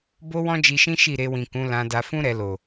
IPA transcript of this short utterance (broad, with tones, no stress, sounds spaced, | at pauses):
b o˦ w ɔ̃˦ d͡ʒ i˧ ʃ ĩ˦ ʃ i˦˨ ɾ e˧ w ĩ˨ k ũ˨˦ l ã˧ d a˧ f ũ˦ ɾ ɛ˧ l o˨